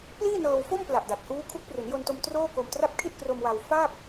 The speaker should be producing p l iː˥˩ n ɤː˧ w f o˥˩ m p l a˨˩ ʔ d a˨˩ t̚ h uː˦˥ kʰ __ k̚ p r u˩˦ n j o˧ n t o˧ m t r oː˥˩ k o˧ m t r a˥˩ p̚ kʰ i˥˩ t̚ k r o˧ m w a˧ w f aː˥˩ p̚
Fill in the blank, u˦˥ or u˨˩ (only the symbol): u˦˥